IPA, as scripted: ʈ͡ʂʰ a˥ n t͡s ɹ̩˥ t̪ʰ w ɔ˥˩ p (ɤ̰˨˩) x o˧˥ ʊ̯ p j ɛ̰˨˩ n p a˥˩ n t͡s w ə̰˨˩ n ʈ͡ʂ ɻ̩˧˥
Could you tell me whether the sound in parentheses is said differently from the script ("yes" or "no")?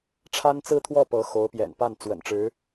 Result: yes